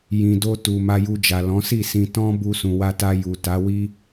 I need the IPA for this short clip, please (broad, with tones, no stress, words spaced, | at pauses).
jĩ˨do˧ tu˨ ma˧ju˧d͡ʒa˨ lɔ̃˨˦si˦˨sĩ˧ tɔ̃˧ bu˧sũ˨wa˧ta˧ ju˨ta˨˦wi˦